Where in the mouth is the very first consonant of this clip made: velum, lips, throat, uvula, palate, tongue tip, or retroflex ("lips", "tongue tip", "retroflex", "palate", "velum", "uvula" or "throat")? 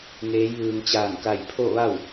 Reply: velum